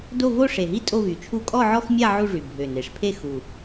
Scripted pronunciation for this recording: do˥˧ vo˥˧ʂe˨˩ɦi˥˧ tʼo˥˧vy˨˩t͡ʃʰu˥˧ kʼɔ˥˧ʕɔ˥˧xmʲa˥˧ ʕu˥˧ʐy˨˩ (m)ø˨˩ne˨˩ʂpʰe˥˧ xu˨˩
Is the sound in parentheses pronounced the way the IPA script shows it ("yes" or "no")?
no